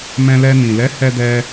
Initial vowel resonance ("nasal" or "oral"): nasal